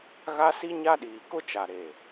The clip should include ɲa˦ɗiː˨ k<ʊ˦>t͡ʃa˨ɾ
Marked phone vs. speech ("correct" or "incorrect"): correct